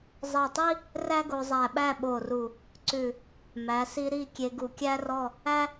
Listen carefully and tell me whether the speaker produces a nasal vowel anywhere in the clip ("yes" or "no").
no